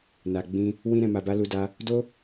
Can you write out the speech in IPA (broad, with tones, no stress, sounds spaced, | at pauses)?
n a˨ ɡ͡b ĩ˧ | w ĩ˧ ɾ ɛ̃˨ m a˨ b a˧ l u˧ d a˧ | d o˦